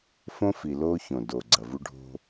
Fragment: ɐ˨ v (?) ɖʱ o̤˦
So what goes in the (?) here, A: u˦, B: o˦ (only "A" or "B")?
A